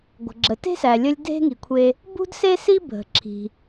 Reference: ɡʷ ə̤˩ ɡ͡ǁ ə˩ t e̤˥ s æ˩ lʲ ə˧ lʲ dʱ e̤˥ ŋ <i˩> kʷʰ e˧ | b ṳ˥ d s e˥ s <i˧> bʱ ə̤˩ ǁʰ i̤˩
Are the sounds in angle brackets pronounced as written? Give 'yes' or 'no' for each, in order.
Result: yes, no

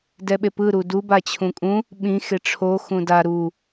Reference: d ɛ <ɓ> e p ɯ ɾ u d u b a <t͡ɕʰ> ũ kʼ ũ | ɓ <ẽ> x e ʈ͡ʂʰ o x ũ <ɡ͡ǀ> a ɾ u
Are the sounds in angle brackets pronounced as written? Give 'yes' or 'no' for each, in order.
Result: yes, yes, no, no

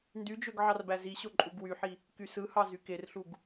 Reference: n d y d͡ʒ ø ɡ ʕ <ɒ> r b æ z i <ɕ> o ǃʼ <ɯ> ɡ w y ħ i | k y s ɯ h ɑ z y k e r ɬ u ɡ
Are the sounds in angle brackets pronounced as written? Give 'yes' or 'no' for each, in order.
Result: no, yes, no

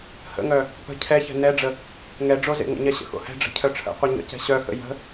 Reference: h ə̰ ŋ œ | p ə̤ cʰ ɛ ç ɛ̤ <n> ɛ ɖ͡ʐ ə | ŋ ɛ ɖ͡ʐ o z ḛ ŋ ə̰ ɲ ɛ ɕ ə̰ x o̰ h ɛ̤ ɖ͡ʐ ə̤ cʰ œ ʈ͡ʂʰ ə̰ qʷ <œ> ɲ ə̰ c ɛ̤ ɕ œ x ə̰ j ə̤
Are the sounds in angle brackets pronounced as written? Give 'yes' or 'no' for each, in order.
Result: yes, yes

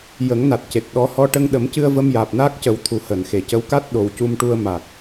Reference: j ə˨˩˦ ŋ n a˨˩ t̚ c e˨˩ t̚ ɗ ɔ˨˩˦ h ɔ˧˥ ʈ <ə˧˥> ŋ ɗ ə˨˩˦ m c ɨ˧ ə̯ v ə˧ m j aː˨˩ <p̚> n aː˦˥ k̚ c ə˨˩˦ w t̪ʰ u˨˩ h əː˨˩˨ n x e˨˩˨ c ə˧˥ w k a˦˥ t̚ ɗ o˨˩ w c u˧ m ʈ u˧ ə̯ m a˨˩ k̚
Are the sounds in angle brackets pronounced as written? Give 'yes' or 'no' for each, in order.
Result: no, yes

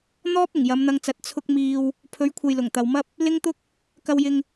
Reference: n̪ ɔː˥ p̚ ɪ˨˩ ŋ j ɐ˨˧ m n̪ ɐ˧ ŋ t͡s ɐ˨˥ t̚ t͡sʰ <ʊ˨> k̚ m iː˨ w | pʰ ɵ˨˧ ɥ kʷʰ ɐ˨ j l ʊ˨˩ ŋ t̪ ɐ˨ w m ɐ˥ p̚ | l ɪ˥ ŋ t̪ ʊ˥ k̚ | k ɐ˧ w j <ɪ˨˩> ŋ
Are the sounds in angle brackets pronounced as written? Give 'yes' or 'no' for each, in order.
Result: no, no

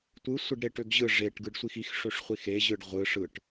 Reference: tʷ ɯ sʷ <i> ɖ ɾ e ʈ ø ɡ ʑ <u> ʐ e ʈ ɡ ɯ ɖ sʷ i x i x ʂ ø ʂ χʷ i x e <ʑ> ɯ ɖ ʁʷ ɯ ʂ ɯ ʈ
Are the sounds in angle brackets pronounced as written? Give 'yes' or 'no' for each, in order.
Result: no, no, yes

